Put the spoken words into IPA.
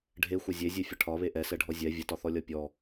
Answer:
ɖʱ e xʷ ə zʲ e zʲ e fʲ ə ʈʰ ɒ β e ʔ ɛ s ɛ ɖʱ ɔ zʲ ɛ vʲ ə t ɒ θ ɔ lʲ ɒ pʲ ɔ

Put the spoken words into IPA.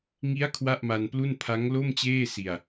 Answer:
ŋ i˦˥ a̯ kʰ w a˥˩ ʔ m a˧ n p l u˥˩ n pʰ a˦˥ ŋ l o˥˩ m t͡ɕ eː˥˩ s i˧ a̯

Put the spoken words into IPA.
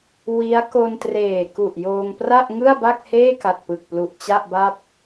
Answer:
w i˦˥ a̯ k o˧ n t r eː˨˩ k u˨˩ ʔ j oː˧ ŋ p r a˥˩ ʔ ŋ ɯ˥˩ a̯ b a˥˩ k̚ h eː˥˩ k a˨˩ t̚ p ɯ˨˩ k̚ p l u˨˩ ʔ t͡ɕ a˥˩ ʔ b a˥˩ p̚

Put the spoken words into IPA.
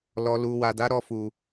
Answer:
l ɔ˨ l u˨ w a˨ d a˨˦ ɾ ɔ˦˨ f u˨

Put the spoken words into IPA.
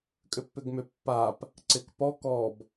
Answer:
kʼ ʏ pː ʏ ɡ m ʏ pː a p | ǀ ɪ k p ɔ k ɔ b

